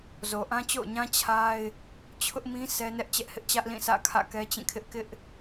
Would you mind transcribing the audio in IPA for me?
z o˨ ʔ ã˦ t͡ɕ o̰˦˨ ʊ̯ ɲ ã˦ t͡ɕʰ a˦ ɪ̯ | t͡ɕʰ ʊ˦ ʔ m ĩ˦ sʰ ɛ˦ n ɛ˦ ʔ t͡ɕ ɛ˦ ʔ h ɪ˦ ʔ t͡ɕ ä˦ ʔ l ĩ˦˨ sʰ ä̰˦˨ kʰ ä̰˦˨ k ɛ˦ t͡ɕ ĩ˦˨ kʰ ɪ˦ ʔ k ɪ˦ ʔ

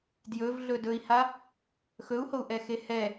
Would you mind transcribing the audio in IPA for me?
d j ɵ v ɮ ɵ d ɵ i̯ h a | x ɵ u̯ h o u̯ ʔ ɛ x e h ɛ

